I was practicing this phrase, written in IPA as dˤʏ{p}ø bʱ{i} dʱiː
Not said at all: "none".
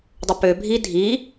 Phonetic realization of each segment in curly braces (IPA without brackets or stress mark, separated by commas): p, i